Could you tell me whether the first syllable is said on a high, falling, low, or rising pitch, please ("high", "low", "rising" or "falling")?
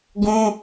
high